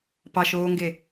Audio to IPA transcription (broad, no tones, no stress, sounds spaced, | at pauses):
p ɑ ʃ oː ŋ ɡ e